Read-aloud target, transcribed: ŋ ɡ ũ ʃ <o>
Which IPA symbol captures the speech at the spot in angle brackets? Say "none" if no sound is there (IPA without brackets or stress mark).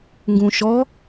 ɔ